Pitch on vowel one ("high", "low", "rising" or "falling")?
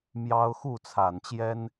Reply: high